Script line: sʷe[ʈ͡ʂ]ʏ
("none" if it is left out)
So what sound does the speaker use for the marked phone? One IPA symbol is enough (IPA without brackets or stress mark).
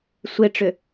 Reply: ʈ͡ʂ